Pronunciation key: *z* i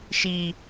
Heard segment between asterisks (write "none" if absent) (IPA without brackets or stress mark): ʃ